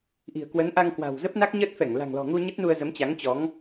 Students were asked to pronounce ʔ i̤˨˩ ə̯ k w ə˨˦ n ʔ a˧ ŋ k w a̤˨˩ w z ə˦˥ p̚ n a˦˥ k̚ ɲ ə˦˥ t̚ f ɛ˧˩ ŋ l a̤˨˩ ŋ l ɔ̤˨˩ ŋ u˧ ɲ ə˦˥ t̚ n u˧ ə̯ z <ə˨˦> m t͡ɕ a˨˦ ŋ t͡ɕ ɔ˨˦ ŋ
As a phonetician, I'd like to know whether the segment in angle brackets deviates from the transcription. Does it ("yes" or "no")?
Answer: no